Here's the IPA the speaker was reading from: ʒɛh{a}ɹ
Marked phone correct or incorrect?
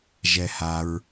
correct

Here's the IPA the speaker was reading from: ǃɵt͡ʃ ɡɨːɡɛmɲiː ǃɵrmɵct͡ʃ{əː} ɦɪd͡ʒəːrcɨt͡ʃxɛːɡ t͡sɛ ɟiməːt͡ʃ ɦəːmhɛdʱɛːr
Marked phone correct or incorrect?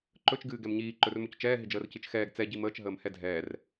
incorrect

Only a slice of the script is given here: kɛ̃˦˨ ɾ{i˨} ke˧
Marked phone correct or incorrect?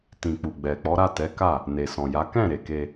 incorrect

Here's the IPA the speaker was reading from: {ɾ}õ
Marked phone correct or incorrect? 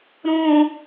correct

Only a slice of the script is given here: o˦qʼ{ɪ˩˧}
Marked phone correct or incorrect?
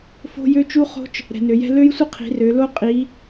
incorrect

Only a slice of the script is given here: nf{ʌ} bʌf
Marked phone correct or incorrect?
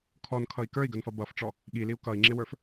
correct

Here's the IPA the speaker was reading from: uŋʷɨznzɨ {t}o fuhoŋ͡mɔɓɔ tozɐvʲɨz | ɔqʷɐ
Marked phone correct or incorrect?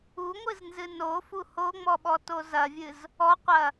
incorrect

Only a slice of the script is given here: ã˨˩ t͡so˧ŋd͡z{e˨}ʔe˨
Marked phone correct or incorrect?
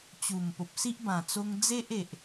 incorrect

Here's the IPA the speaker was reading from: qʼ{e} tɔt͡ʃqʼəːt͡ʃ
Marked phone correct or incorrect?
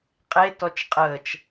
correct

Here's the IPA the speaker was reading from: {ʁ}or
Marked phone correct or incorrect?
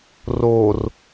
incorrect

